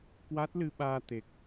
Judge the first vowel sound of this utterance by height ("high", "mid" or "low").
low